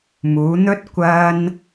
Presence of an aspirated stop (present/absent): absent